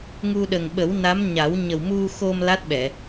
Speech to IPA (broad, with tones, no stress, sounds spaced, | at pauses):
ŋ u˧ ɗ ə˨˩ ŋ ɓ ə˨˩˦ w n a˧˥ m ɲ a˨˩˦ w ɲ ə˨˩ w m u˧ x o˧ m l a˦˥ t̚ ɓ ɛ˨˩˨